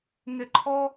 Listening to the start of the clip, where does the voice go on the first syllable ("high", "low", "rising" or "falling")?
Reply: falling